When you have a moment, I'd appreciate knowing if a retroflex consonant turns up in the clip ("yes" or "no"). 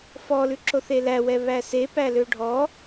yes